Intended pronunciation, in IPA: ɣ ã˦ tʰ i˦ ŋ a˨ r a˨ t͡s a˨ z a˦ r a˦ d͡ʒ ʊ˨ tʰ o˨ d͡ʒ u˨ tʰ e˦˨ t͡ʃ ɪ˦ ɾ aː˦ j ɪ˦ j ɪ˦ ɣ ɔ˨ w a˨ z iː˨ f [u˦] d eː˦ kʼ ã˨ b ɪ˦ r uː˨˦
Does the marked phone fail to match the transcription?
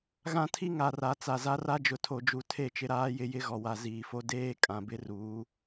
yes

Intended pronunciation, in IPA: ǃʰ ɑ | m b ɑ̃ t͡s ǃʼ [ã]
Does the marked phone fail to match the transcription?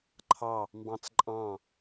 yes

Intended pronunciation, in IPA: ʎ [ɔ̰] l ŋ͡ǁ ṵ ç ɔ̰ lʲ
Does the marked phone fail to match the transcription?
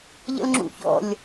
yes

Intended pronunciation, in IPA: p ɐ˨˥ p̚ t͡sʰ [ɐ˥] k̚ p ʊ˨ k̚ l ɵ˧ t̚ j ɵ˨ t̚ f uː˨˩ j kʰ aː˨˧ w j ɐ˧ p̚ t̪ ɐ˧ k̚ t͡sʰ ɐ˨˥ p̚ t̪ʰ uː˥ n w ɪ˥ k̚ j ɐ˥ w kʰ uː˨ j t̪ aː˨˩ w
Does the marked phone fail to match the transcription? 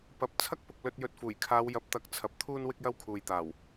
no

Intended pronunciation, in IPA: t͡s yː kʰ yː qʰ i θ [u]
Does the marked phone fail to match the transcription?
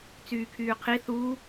no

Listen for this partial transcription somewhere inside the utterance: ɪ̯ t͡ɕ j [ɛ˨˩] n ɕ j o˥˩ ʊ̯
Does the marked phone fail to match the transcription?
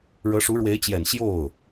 no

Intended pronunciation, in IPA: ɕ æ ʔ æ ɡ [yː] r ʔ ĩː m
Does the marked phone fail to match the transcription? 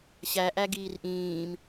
yes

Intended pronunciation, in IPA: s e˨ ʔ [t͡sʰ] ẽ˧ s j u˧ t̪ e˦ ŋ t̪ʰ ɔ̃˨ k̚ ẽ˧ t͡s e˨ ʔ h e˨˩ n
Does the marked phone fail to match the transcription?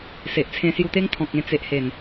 no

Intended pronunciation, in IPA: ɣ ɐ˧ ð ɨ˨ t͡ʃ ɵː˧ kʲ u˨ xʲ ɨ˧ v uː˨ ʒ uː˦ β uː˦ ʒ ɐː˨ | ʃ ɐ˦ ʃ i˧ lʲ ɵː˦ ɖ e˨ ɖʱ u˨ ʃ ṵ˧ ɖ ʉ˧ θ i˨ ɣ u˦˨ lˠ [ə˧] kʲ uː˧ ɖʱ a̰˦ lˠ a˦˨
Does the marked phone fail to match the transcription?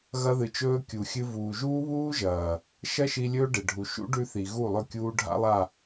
yes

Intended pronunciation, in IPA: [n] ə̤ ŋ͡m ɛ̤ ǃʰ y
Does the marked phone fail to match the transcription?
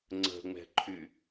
yes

